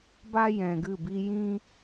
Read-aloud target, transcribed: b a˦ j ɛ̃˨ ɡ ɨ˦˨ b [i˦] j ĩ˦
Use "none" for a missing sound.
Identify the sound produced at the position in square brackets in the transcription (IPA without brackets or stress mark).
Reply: i˦